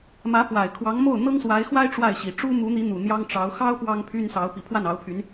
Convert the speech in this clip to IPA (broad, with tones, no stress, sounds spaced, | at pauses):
m ä˧˥ p w a˨˩ ɪ̯ kʰ w ɑ˧˥ ŋ m o˥˩ ʊ̯ n̪ ɤ˥ ŋ s w a˧˥ ɪ̯ x w a˥ ɪ̯ ʈ͡ʂ w a˥˩ ɪ̯ ɕ i˨˩ ʈ͡ʂ u˥ m u˧˥ n̪ i˧˥ n̪ u˨˩ n̪ j ɑ˥ ŋ ʈ͡ʂ ɑ˧˥ ʊ̯ x ɑ˥ ʊ̯ p w ɑ˥ ŋ pʰ y˥ n s ɑ˧˥ ʊ̯ p i˨˩ pʰ w a˥˩ n ɑ˧˥ ʊ̯ pʰ y˧˥ n